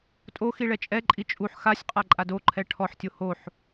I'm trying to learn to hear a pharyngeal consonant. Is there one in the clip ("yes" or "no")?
yes